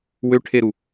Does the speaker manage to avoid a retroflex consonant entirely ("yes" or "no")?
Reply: no